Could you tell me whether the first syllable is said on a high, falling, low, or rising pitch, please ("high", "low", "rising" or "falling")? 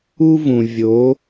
high